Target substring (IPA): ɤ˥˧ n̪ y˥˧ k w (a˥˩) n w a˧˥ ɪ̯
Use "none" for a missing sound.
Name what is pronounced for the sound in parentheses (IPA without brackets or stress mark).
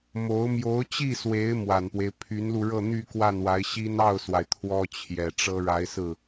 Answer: a˥˩